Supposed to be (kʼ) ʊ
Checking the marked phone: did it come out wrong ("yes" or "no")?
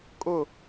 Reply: no